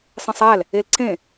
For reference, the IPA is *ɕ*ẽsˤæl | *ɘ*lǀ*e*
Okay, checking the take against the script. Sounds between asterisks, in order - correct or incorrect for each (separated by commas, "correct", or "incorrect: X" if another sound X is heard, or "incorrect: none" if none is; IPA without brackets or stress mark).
incorrect: sˤ, incorrect: e, incorrect: ẽ